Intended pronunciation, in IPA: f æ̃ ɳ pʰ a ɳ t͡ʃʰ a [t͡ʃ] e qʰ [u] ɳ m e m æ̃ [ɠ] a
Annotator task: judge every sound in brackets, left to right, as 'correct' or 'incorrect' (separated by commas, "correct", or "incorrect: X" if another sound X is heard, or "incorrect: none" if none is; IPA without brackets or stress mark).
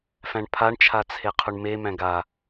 incorrect: t͡sʰ, correct, incorrect: ɡ